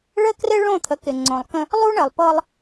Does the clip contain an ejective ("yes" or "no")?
no